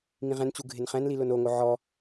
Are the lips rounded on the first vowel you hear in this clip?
no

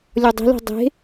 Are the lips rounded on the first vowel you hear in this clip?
yes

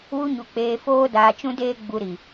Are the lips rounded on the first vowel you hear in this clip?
yes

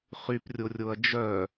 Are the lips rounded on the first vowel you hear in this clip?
yes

